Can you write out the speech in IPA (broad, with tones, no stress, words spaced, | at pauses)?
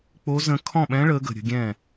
k͡po˧˥ zə̃˧˥ kʰɔ̃˥˩ɓɛ̃˧˥ɭəː˩˧ ɡə̤˩ɾʲə̤˩˧ ɡʲɛ̃˥˩